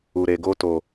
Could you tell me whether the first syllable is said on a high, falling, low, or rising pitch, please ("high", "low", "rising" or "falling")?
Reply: low